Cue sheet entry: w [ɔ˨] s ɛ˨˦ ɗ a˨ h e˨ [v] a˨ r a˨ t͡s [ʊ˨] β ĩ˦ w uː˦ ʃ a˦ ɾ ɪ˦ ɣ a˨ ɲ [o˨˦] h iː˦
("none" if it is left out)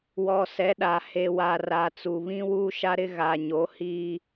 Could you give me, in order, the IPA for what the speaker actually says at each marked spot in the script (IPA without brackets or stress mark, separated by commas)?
ɔ˨, w, u˨, o˨˦